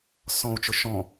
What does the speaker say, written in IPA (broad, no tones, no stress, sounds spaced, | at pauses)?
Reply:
s ɔ̃ u̯ t͡ʃ ʊ ʃ ɔ̃